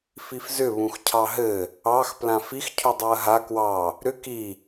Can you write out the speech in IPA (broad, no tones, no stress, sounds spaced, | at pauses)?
f i f z ʏ β ũ x cʰ ɑ ɦ ɘ | ɑ x p l ã f i x cʰ u dˤ a ɐ̯ ɦ a k w ɑ | ɾ ʏ k i